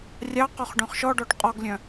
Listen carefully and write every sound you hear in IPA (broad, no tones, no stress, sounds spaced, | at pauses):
rʲ ɑ q ɔ χ ɖ œ̃ χ ʃ ɔ ɖ ɔ ɖ qʼ ɔ ɡ lʲ œ̃